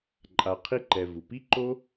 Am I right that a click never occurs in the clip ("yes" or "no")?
no